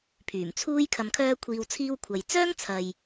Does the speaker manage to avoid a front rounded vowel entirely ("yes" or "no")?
no